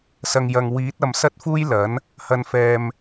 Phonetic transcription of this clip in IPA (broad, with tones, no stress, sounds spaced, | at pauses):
s ɐ˨ ŋ j ɐ˨ ŋ w iː˨˥ t̚ ɐ˨ m s ɐ˥ t̚ f uː˥ j l ɐ˨˥ n | h ɐ˧ n f ɛː˧ m